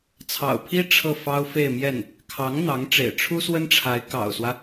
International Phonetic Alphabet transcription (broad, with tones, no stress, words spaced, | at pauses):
t͡sʰɑ̰˨˩ʊ̯pʰi˥ ʈ͡ʂʰɤ˥˩fɑ˥ʊ̯fe˥˧ɪ̯mjɛ˥˩n | kʰɑ˧˥ŋ n̪ɑ˧˥ŋ ʈ͡ʂḛ˨˩ɪ̯ʈ͡ʂʰu˥swə˥nʈ͡ʂʰa˧˥ɪ̯ kɑ̰˨˩ʊ̯swä˦